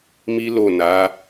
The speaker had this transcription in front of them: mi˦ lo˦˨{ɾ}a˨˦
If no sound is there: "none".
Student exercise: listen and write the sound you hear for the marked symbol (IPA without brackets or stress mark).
n